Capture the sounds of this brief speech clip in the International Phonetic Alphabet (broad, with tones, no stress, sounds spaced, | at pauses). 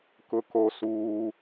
k ʊ˦ k o˦ s uː˦